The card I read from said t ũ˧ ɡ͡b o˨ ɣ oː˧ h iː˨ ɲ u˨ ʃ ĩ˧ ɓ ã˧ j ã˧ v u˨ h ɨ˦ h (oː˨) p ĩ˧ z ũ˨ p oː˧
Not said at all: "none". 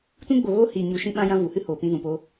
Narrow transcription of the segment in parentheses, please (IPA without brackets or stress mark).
oː˨